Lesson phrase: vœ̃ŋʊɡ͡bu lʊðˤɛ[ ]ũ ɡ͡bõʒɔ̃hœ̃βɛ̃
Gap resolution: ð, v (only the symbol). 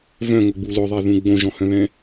ð